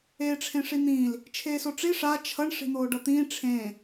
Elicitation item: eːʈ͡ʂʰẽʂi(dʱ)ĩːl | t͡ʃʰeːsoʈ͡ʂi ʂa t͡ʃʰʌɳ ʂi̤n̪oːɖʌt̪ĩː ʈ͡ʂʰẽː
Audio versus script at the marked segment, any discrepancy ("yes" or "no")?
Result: yes